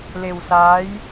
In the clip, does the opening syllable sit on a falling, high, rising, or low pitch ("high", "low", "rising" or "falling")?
low